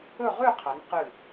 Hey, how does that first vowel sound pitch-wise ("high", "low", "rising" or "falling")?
falling